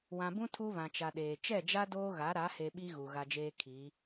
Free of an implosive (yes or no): no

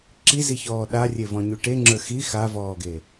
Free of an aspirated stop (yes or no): yes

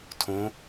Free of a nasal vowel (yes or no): no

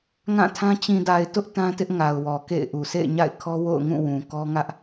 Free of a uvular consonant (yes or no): yes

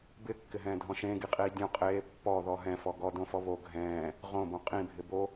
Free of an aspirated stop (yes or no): yes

